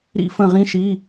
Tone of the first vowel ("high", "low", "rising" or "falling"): high